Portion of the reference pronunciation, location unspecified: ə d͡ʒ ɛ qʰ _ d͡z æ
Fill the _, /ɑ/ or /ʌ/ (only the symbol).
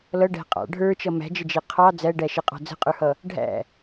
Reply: ɑ